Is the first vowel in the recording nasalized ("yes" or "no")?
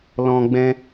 yes